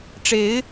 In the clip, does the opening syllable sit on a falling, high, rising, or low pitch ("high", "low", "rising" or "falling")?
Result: rising